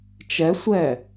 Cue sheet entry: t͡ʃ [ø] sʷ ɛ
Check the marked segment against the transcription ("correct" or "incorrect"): incorrect